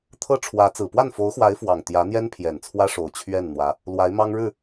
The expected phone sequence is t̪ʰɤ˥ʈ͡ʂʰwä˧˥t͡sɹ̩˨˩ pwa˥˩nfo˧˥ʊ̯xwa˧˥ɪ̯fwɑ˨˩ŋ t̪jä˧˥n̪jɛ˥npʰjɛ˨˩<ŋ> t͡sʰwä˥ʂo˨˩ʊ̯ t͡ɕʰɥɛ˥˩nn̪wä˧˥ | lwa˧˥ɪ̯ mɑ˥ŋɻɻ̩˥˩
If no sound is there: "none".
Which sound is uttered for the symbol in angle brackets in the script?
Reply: n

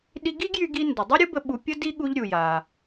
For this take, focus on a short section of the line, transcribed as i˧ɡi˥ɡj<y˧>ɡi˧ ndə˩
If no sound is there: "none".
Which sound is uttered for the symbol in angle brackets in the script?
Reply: y˧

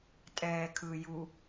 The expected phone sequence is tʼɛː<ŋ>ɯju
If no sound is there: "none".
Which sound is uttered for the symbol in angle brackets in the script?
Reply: kʰ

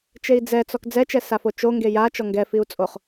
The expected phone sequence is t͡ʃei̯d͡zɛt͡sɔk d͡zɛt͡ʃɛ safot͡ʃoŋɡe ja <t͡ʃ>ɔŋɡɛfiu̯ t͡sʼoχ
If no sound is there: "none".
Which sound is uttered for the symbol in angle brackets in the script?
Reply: t͡ʃ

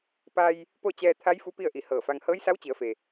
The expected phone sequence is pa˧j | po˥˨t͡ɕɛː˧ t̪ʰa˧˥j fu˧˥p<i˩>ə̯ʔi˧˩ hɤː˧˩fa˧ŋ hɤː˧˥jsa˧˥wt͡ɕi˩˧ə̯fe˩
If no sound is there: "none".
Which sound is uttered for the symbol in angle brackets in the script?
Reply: i˥˨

